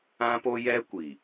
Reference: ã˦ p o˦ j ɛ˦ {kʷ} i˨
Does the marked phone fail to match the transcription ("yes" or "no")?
no